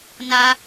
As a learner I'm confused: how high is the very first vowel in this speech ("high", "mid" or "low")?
low